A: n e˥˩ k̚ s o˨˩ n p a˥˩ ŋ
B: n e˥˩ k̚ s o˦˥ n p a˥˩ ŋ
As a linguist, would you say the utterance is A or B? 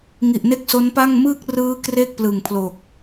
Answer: B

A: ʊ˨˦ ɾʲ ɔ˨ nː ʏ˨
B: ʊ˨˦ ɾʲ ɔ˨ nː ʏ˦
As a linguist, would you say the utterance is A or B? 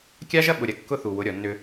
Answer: B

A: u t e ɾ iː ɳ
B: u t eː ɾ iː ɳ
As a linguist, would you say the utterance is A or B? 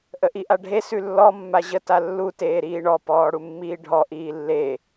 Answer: B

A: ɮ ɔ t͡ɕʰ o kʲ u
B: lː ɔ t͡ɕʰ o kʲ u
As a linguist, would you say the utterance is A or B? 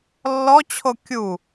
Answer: B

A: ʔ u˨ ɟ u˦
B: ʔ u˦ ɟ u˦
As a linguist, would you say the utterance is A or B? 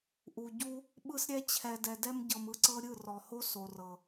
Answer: A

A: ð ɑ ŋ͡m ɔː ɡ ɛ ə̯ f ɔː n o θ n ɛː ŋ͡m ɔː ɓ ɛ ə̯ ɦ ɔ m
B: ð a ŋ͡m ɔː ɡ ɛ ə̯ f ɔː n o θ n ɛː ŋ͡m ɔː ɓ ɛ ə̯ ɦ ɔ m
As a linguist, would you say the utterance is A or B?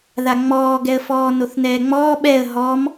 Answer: B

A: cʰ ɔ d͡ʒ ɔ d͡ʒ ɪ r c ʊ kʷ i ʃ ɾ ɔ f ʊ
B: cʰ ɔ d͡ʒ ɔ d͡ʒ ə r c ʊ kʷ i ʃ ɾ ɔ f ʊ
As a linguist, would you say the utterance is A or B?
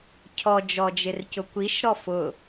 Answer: A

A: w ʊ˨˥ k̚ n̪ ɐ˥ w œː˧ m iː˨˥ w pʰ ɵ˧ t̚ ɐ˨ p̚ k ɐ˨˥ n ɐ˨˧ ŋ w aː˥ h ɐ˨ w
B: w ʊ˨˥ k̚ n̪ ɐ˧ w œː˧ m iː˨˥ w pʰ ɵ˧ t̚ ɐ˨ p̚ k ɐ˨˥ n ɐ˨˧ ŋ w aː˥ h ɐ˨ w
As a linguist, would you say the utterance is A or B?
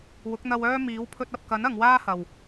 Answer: B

